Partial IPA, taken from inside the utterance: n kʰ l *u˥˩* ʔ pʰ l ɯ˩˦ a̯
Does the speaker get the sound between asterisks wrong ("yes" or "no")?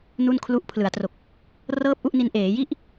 yes